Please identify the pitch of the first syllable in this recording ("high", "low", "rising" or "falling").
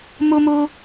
high